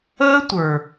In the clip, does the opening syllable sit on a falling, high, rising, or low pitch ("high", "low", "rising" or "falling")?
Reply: high